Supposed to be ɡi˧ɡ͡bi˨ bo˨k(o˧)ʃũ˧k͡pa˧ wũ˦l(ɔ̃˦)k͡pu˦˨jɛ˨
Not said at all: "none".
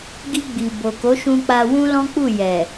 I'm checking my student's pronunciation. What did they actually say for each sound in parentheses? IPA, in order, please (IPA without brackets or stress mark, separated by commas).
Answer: o˨˦, ɔ̃˦